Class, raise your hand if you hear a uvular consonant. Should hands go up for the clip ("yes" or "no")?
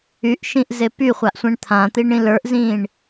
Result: yes